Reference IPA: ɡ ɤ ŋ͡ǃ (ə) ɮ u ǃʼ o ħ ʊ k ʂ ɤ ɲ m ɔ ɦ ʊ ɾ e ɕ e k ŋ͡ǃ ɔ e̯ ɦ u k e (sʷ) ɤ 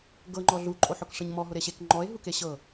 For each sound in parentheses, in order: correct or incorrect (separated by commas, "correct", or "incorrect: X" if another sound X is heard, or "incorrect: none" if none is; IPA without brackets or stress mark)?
incorrect: ɔ, incorrect: ɕ